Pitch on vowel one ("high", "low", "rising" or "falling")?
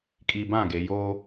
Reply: low